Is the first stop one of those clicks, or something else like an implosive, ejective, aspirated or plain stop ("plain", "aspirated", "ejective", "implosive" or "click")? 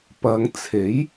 plain